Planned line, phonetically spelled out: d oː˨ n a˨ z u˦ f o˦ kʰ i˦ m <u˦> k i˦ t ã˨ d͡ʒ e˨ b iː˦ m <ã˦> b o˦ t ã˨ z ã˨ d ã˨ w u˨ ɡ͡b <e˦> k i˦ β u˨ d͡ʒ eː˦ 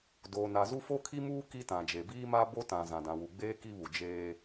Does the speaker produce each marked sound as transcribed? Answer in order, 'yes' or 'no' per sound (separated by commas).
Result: no, no, no